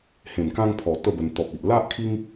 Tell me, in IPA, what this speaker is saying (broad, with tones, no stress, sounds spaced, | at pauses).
h ẽ˨˩ n k ã˧ ŋ pʰ ɔ˨˩ t̪ ə˥˧ b ə˧ n t̪ ɔ˨ p̚ i˨ ʔ l a˦ ʔ kʰ i˦ ŋ